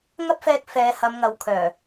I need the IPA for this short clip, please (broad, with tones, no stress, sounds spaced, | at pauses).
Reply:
ŋ ɐ˥ p̚ f ɛː˧ k̚ f ɛː˨˧ h ɐ˨˧ m ŋ ɐ˨˧ w kʰ œː˨˩